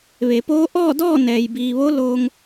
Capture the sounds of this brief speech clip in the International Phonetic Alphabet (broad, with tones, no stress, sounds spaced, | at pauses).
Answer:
ʋ e˩˧ p oː˧˥ ʔ ɔː˥˨ d ɔː˥˨ n ɛː˩ j b iː˩ ʋ o˧˥ l oː˧ ŋ